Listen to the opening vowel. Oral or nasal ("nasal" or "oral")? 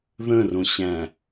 nasal